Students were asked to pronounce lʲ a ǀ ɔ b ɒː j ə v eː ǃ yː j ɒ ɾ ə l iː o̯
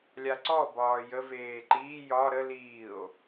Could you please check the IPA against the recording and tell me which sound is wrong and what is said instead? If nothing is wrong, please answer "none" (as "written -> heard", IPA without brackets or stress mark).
yː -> iː